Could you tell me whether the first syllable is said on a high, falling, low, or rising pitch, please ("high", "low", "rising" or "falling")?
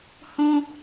high